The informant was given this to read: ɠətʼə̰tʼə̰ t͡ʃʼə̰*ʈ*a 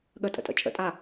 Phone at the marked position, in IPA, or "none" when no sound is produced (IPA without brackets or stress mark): tʼ